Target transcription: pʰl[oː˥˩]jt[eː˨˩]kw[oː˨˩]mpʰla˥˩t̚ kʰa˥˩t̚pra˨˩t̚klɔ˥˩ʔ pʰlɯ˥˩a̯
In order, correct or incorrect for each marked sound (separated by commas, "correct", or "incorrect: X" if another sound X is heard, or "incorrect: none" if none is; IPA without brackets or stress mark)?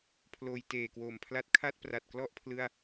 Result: incorrect: oː˧, correct, correct